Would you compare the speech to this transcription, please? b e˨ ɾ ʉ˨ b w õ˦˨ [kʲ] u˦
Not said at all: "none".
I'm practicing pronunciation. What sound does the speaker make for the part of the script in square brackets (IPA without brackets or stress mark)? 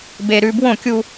kʲ